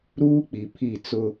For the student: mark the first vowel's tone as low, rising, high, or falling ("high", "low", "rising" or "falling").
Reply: high